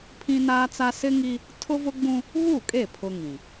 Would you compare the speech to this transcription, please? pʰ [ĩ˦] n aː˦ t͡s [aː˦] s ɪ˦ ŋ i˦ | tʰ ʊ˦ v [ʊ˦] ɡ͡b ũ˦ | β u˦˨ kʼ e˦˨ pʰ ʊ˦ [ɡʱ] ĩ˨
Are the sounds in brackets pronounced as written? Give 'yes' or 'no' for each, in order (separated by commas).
yes, no, yes, no